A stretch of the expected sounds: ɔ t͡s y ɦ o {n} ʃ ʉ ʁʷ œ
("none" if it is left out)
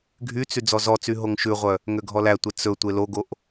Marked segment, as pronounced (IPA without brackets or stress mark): ŋ